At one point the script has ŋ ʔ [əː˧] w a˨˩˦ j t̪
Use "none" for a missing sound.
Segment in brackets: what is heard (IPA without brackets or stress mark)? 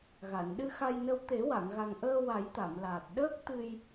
əː˧